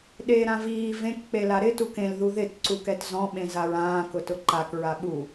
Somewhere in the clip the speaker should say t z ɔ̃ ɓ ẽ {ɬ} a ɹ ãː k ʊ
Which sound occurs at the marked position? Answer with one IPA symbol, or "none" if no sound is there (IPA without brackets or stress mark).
z